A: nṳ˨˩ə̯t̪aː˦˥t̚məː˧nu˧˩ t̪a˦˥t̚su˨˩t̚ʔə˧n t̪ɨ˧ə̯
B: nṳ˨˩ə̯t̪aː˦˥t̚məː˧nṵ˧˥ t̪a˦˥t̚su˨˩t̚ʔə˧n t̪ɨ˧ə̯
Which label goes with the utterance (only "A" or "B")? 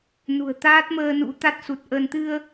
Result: B